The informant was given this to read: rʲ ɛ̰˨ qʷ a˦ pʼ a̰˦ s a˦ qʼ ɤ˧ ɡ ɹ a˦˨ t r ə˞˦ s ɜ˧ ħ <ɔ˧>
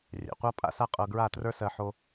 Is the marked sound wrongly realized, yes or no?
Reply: yes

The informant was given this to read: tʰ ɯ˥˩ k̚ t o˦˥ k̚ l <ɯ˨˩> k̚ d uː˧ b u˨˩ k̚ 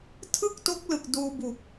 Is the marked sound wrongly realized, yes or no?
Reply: no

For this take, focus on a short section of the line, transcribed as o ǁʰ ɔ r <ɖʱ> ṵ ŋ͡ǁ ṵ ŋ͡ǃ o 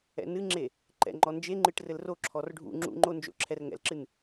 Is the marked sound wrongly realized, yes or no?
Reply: no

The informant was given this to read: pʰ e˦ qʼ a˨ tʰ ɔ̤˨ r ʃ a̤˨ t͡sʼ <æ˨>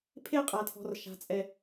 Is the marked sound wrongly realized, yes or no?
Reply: yes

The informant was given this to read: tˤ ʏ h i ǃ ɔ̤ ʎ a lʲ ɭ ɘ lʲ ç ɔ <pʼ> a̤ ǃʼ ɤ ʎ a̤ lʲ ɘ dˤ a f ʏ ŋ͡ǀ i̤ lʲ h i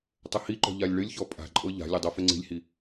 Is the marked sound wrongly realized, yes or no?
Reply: no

